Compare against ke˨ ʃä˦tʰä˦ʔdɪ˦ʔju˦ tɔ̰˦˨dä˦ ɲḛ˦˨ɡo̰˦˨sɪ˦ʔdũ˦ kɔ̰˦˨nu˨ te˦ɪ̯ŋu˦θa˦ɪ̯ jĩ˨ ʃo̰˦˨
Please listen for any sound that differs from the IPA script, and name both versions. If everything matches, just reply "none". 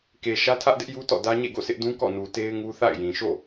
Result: a˦ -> a̰˦˨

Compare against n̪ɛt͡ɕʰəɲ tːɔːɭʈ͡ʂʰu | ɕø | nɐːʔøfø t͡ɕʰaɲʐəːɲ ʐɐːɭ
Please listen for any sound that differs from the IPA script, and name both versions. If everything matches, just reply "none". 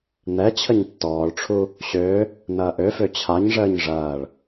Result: none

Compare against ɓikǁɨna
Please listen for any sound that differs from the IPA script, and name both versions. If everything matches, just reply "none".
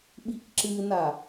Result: none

